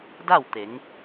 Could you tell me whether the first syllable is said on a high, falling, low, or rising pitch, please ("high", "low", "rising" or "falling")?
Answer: falling